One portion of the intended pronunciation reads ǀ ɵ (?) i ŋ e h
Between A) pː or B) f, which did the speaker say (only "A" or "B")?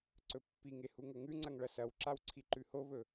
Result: A